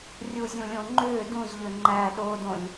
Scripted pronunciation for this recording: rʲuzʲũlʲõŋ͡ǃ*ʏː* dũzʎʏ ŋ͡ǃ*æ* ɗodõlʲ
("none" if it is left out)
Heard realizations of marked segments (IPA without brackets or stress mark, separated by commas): ʏː, æ